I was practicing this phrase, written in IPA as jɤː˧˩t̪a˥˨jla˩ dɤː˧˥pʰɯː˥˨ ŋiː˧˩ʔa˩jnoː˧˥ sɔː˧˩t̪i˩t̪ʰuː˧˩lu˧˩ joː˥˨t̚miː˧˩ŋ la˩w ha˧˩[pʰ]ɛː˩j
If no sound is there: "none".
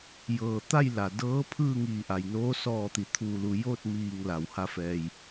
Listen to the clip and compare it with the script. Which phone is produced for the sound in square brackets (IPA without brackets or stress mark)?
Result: f